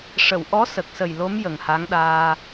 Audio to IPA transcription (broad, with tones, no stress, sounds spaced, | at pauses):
ʂ ə˨˩˨ w ʔ ɔ˧˥ s ə˨˩ k̚ s ə˨˩ j l o˧˥ m j ə˨˩ ŋ h a˧˥ ŋ ɗ aː˧